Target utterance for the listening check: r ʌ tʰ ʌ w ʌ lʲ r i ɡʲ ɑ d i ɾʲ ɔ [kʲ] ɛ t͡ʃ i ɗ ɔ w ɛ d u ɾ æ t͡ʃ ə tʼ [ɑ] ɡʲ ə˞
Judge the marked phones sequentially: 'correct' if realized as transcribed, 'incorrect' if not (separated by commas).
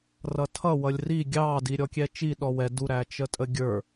correct, incorrect